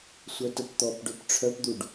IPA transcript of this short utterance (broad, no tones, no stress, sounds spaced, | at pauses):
sʷ œ t ə p t̪ ɔ p ɖ ø p ʈ͡ʂʰ œ p d̪ u ɖ